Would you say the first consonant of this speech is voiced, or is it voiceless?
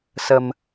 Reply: voiceless